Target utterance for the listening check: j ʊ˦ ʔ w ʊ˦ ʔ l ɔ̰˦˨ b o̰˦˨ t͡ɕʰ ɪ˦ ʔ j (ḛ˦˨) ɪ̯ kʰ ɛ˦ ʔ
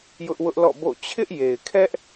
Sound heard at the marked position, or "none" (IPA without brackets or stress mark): e˨